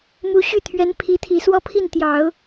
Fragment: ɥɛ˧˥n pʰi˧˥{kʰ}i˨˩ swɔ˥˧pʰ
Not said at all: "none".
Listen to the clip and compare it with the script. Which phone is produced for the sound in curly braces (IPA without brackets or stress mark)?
t̪ʰ